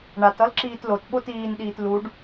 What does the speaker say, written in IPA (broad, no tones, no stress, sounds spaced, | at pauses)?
ɳ a t ʌ l ǁ iː t l o t ɓ o t iː n ɗ iː t l u ɖ